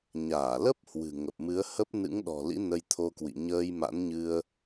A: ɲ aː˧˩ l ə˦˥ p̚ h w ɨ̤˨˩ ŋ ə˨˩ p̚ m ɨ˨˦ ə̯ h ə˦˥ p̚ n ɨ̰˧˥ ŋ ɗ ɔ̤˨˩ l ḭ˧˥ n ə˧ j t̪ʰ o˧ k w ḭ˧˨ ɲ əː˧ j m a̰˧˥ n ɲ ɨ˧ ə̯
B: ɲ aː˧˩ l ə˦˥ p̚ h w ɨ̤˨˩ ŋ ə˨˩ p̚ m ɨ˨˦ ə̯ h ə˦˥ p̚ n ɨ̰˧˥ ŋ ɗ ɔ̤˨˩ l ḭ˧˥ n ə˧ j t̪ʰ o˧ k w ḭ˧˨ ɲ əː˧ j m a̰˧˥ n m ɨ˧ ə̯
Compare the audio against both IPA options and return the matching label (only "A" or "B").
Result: A